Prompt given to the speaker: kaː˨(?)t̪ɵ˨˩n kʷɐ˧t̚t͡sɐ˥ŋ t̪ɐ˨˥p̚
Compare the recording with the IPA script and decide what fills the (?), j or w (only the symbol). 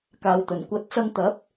w